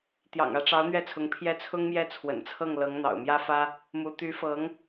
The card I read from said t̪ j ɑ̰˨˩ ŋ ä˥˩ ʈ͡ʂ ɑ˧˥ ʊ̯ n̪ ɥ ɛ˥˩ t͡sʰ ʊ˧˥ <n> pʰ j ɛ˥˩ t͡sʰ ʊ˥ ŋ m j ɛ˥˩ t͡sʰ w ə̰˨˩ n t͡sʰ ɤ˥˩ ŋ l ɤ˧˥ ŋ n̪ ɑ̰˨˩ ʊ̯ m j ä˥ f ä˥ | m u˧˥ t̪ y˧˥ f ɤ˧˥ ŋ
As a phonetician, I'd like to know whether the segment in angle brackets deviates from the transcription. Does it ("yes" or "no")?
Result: yes